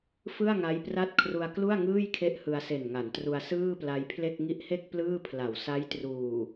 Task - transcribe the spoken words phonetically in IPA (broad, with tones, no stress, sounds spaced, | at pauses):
f ɯ˥˩ a̯ ŋ a˦˥ j p r a˥˩ t̚ kʰ r u˧ a̯ k l u˥˩ a̯ ŋ ɯː˥˩ j kʰ e˦˥ ʔ h ɯ˧ a̯ s e˨˩ n ŋ a˩˦ n t r u˧ a̯ s ɯː˥˩ p l a˧ j pʰ l e˥˩ k̚ ŋ i˦˥ ʔ h e˥˩ k̚ p l ɯː˥˩ pʰ l a˩˦ w s a˦˥ j t r uː˨˩